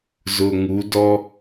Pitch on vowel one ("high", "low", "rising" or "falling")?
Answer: low